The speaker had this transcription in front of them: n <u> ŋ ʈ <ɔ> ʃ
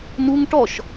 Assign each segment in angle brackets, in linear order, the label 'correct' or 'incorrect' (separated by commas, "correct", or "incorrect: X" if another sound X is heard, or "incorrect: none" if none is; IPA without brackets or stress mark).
correct, correct